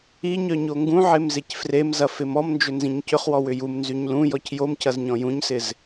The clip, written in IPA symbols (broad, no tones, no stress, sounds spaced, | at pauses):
i ɲ œ ɲ o ŋ ɡ ũ ʕ e m z e c f r e m z ɐ f ɪ m ɔ m n d͡ʒ ʏ n z ĩ ɲ c ʏ χ w ɔ w ʏ j u m n z y ɲ l ũ j ɔ c j o m c ɐ z ɲ ɔ̃ j ũ ɲ s ɪ z